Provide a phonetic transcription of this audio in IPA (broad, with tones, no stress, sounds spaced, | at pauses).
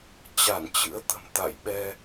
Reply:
t͡ɕ a˧˩ n t͡ɕ ɨ̰˧˥ ə̯ t̪ ə̤˨˩ m t̪ a̰˧˨ j ɓ ɛ˧